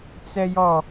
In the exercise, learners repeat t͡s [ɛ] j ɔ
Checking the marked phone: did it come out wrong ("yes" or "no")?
no